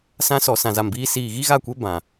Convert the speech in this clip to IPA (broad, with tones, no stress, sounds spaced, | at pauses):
s ã˧ s ɔ˨ s ã˨ z a˨ m b iː˧ s iː˨ ɣ i˦ ɣ a˦˨ kʷ e˦ b ã˨